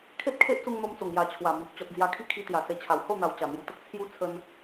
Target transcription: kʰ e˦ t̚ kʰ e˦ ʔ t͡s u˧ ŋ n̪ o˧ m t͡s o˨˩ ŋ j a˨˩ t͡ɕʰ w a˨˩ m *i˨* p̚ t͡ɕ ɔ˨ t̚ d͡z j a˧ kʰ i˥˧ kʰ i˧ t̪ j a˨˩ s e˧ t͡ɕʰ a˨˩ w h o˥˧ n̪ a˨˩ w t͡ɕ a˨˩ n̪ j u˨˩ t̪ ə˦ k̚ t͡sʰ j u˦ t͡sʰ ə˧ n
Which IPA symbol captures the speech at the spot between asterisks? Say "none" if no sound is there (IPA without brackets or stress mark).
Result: i˨